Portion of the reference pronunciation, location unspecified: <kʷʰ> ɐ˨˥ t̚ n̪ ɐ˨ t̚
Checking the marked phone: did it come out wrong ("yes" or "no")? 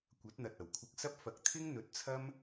yes